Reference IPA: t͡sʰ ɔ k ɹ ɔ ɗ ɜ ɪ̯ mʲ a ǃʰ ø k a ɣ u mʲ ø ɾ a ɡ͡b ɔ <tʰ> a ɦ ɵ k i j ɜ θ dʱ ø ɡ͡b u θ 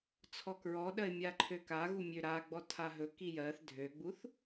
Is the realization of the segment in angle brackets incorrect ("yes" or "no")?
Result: no